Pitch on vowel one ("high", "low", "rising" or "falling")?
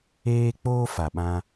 high